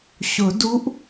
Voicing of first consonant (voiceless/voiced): voiceless